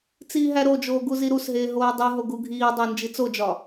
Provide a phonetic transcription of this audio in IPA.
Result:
t͡s iː ɦ æ ɾ o d͡ʒ oː ɡ u z i ɾ u s ɦ eː ɦ oː dˤ u ɦ o ɡ u ɡʱ iː dˤ o n d͡ʒ i t͡s o d͡ʒ ɒ

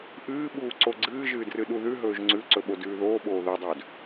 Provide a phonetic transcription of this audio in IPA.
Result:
ʔ ɨː ɓ uː ǀ o ɡ͡ǀ ɨː ʒ ɨː d r ɨ ɗ u ð ʉ ɦ ɵː ʒ ŋ͡ǀ ʉ ǀ ɵ ɓ o d ʉː ð oː ɓ oː ð o dˤ ɵː d

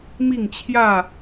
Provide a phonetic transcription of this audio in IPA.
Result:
m i˥˨ ŋ t͡ɕʰ j ä˥˨

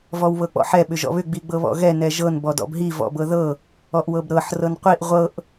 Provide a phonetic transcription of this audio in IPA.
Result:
v ɔ w β ɤ k͡p ɔ̰ ħ ɛ ɓ ʏ ʒ ɔ̰ β ʏ ɡ͡b i ɡ͡b ɤ β ɔ̰ ɣ ɛ n ɛ ʒ ɤ n b ɔ d ɔ̰ b ɦ i v ɔ̰ b ɤ ð ɤ | ɔ ʔ w ɤ b ɾ ɤ ħ r ɤ n qʷ i ʔ ʁʷ ɤ ʔ

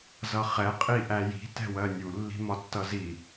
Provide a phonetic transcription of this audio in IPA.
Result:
z ʌ χ ɛ qʼ i ʔ æ j i̤ t ɛ̤ w ɜ nʲ u lː i̤ m ɒ tː ʌ z i

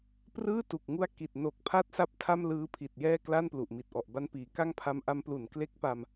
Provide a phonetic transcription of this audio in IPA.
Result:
p r ɯː˥˩ t u˨˩ k̚ ŋ u˦˥ a̯ k i˨˩ t̚ n o˨˩ k̚ pʰ a˦˥ t̚ s a˥˩ p̚ tʰ a˥˩ m l ɯː˦˥ pʰ i˨˩ t̚ j ɛː˥˩ k l a˥˩ n p l u˨˩ ʔ m i˨˩ t̚ ʔ ɔ˨˩ ʔ b a˦˥ n p iː˩˦ k a˥˩ ŋ pʰ a˦˥ m ʔ a˦˥ m p l u˨˩ n k l e˦˥ k̚ p a˧ m

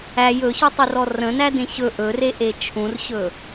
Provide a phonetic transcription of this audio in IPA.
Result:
æ j ɵ ɕ ʉ tˤ u r ɔ r ə̃ n æ d ẽ ɕ ɵ ʔ ɵ r e ʔ e t͡ʃʰ ũ r ɕ ɵ

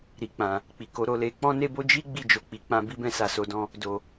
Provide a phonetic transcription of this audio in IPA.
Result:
ɾ i˨ k͡p ã˨ | k͡p i˨ k o˨˦ ɾ o˧ l e˧ k͡p ɔ̃˦ n e˦ b o˦ d͡ʒ i˦ ɡ͡b i˦˨ d͡ʒ o˨ k͡p i˨ k͡p ã˧ b i˦ b ɛ̃˧ s a˨ s o˨˦ d ɔ̃˧ | d o˨

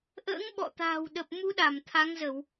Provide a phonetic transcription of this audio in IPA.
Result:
ʔ ə̰ː˧˥ ŋ ɓ ɔ̰˧˨ t̪ a̤ː˨˩ w ɗ ə˨˩ p̚ m u˨˦ ɗ a˧˩ m t̪ʰ a˨˦ ŋ z ə˧˩˨ w

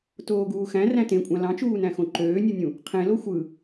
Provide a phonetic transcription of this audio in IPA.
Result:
t oː ɡ uː x æ̃ r æ̃ t ẽ kʷʼ ɑ̃ l ɑ̃ t͡ʃ uː n æ̃ x õ ǃ øː nʲ u nʲ ũ | qʰ ẽ l o xʷ ɯ

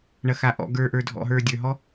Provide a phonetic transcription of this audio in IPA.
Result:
ɳ ɐ˨ x a˨ ʔ ɔ̰˨ ɡ ə˞˨ ʔ ə˞˨ dʱ ɔ̰˨ ɦ ə˞˨ dʲ ə˞˨ ɦ ɔ˦

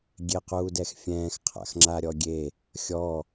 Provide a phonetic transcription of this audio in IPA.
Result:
ɡʲ e q uː d ɛ x fʲ ɛ̃ː x qʰ a̰ x ŋ͡ǁ a ɾʲ ɔ ɡʲ e | xʲ ɔ

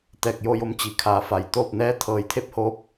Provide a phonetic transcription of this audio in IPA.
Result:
t̪ ɛː˧˩ k̚ j o˥˨ j o˧ m t͡ɕ i˩ kʰ aː˩˧ f a˩ j t̪ oː˥˨ p̚ n ɛː˧˥ t̪ʰ ɤː˩˧ j t̪ʰ e˥˨ p̚ h oː˧ p̚

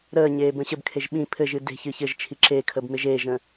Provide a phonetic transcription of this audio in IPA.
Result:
ɾ əː ɲ eː b ə̃ ɕ ə b kʰ e ʒ ɓ ĩ pʰ ɘ ʒ ɨ d e̤ ç ɨ ç ɘ ʒ t͡ʃʰ i ǁ e kʰ ə b m ɪ ʒ eː ʒ ə̃

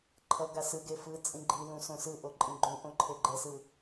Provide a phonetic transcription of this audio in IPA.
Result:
ǃʰ ʌ ɡ a s ɯ ɡ e f ɯ t͡sʼ ĩ ɡ͡ǃ i l ũ s õ s ɯ ʔ o ǃʼ ĩ ɡ͡ǃ ũ ʔ õ ǃʰ e ɡ͡ǃ ɛ s ɯ

